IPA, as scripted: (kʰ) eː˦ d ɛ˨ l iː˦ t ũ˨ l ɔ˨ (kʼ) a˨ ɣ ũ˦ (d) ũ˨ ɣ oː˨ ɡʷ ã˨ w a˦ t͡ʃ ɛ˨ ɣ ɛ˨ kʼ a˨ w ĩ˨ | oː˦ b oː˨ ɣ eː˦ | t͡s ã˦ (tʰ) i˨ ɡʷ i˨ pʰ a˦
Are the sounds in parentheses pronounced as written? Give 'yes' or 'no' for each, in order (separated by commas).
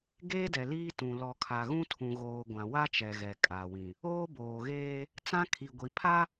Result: no, no, no, no